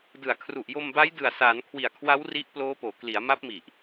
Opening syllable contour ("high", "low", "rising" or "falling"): low